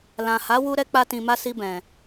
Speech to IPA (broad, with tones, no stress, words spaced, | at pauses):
lã˨ha˨˦ wu˦ ɾɛ˦k͡pa˦tĩ˧ma˦ si˧bɛ̃˨